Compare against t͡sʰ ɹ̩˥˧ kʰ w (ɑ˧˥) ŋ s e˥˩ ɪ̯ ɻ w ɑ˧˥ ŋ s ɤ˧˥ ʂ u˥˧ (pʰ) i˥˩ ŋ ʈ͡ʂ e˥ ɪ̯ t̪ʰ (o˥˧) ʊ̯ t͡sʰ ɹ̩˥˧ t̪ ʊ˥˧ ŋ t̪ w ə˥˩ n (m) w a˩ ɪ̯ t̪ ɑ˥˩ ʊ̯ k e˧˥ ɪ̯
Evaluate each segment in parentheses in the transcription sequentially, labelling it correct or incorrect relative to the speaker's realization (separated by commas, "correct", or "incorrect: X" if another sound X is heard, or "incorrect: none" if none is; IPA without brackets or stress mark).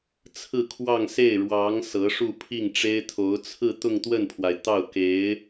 incorrect: ɑ˥˧, correct, incorrect: o˧˥, incorrect: pʰ